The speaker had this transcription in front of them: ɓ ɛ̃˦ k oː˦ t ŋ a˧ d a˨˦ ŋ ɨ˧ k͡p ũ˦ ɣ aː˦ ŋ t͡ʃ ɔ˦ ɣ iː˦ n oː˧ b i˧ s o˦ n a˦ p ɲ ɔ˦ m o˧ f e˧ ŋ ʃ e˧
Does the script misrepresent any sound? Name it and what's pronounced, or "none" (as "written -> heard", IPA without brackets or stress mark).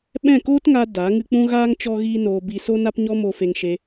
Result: ɛ̃˦ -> ɛ̃˦˨